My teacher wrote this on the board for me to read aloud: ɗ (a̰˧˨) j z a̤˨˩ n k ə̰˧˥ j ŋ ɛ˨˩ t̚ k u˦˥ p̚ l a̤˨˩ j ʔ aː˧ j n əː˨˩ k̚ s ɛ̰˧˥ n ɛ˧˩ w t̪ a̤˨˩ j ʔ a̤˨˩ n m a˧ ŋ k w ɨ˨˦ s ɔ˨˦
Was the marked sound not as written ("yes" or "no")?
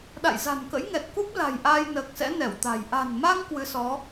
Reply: no